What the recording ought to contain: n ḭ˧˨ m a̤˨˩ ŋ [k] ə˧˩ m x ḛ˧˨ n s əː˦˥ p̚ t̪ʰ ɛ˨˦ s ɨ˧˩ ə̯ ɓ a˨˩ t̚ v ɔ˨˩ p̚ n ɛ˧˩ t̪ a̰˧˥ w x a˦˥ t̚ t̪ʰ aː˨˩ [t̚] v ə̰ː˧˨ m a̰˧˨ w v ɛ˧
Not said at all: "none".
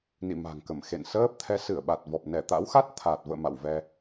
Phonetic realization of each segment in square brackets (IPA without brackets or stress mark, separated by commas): k, t̚